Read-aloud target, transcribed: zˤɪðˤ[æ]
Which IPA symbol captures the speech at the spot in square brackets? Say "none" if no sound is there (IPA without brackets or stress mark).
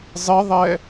ɛ